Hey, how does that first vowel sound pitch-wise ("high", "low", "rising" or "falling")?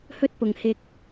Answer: high